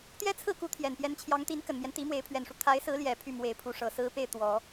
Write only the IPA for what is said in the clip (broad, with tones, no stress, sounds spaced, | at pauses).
t̪ j ɛ˥ t͡sʰ ɹ̩˥˩ k u˧˥ t̪ʰ j ɛ˨˩ n p j ɛ˧˥ n t͡ɕʰ j ɑ˧˥ ŋ t̪ i˧˥ n k ə˨˩ n m j ɛ˦ n t̪ i˧˥ m w e˧˥ ɪ̯ pʰ ɥ ɛ˨˩ n ʂ u˦ t̪ʰ a˧˥ ɪ̯ s ɹ̩˧˥ l j ɛ˨˩ pʰ y˥˩ m w e˧˥ ɪ̯ pʰ u˧˥ ʂ ɤ˨˩ s ɹ̩˥ p e˥˩ ɪ̯ t̪ w ɔ˨˩˦